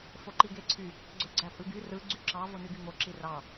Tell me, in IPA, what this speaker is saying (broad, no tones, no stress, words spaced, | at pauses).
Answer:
foǃiɡeǀʰy | ɡ͡ǀøɡ͡ǀæpʼɯɡy rɯ ɡ͡ǀyǁɑ vonyɡyŋo ǁirɑ